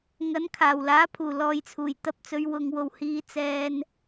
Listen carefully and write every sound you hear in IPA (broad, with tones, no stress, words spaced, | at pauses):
ŋɐ˨˥n kʰaː˨˩wlaː˨˥pʰuː˨˩ lɔː˨jt͡sʰuː˨˩jt̪ɐ˧p̚t͡sɵ˨˧ɥ wʊ˨ŋwo˨w hiː˧ t͡sɛː˧n